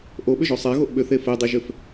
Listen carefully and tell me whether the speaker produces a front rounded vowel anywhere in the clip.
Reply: yes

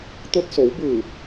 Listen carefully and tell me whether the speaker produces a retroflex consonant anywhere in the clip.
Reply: no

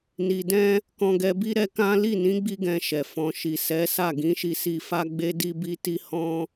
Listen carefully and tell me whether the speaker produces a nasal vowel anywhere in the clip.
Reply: yes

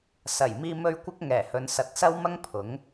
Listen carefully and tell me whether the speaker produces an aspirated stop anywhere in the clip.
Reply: yes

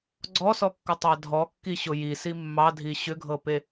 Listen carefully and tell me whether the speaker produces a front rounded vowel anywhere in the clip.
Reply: yes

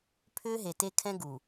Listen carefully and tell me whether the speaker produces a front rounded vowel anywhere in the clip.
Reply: yes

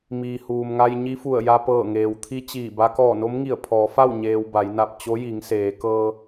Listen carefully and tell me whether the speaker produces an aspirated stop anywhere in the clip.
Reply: yes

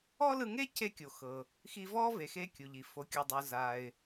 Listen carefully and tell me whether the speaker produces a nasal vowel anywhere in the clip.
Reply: no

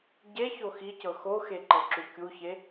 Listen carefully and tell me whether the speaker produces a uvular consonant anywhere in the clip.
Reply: no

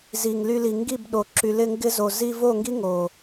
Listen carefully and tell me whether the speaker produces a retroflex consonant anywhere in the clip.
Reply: no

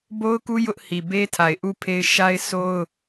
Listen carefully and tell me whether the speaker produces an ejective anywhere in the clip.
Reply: no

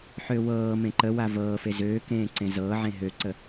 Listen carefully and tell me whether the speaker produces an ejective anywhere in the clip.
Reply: no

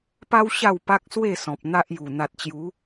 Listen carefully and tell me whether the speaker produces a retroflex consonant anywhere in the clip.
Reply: no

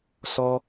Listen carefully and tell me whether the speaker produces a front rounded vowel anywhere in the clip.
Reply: no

